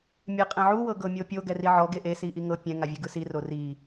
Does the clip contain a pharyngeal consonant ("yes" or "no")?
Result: yes